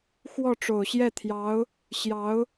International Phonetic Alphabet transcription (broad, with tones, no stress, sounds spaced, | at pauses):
x w ɔ˥˩ ʈ͡ʂ o˨˩ ʊ̯ ɕ j ɛ˥˩ t̪ʰ j ɑ˧˥ ʊ̯ | ɕ j ɑ˧˥ ʊ̯